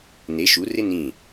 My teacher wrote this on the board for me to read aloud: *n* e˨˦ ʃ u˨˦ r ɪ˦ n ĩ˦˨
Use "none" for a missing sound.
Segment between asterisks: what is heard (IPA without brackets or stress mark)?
n